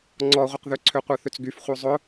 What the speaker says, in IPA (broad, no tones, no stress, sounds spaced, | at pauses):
ŋ͡ǀ ɔ ʁʷ ə q ð ø ǀʰ ø qʷ œ θ ʏ t͡s ɡ y f χʷ œ zˤ ʊ